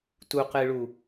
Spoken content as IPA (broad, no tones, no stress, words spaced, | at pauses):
tuqɨɭu